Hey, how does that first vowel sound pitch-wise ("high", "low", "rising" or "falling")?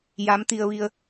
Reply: rising